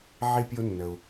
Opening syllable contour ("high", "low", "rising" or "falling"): high